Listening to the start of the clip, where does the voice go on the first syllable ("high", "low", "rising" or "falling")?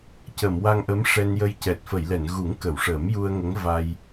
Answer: low